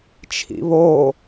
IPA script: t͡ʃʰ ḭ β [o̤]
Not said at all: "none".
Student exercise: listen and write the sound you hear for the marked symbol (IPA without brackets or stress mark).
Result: o